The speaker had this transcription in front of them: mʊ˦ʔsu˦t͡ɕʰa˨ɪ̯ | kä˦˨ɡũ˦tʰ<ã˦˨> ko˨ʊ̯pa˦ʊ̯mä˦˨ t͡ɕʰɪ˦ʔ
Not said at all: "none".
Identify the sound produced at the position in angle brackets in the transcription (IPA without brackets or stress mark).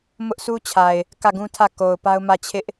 ä˦˨